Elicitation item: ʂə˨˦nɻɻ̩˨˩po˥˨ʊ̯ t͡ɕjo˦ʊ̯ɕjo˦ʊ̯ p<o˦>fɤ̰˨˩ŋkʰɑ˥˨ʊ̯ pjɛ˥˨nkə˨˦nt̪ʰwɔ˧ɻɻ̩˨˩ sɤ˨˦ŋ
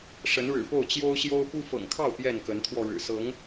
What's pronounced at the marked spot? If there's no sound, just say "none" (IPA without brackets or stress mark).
u˦